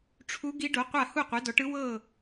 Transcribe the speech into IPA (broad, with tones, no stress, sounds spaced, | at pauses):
ʈ͡ʂʰ u˧˥ ɡ i˧˥ ɖ o˩˥ qʷ a˥˩ h u˥˩ qʷ ɛ˩˥ d ɔ˩˥ ʈ ɯ˧˥ w ɤ˥˩